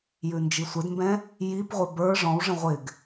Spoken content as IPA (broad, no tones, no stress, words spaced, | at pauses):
jʉnd͡ʒisʷɪdmbɛ̃ | jipʁʷɪ bə˞ ʐɔ̃wʐə̃ ʁʷɪɡ